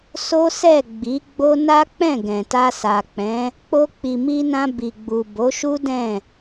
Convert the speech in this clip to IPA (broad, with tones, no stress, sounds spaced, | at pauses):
s o˦ s ɛ˦˨ ɡ͡b i˨˦ ɡ͡b o˦ n a˦ k͡p ɛ̃˦˨ ɡ ɛ̃˨ t a˧ s a˨ k͡p ɛ̃˨˦ | k͡p o˧ k͡p i˨ m i˧ n ã˧ b i˨ ɡ͡b u˨ b o˨˦ ʃ u˦ d ɛ̃˦˨